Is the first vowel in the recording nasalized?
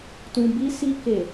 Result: yes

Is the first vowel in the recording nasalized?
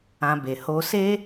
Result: yes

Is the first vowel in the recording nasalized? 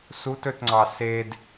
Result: no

